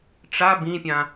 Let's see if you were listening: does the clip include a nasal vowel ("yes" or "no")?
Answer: yes